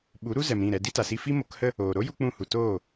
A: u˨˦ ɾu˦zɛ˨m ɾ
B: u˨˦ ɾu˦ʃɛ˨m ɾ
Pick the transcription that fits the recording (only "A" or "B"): A